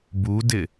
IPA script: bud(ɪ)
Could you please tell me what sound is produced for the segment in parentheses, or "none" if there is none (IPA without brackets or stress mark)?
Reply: ɪ